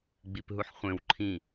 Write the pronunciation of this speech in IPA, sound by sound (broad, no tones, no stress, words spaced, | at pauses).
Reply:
ɡ͡bipɦuħχʷẽw ǃʰĩ